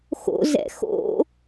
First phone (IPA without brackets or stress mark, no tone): x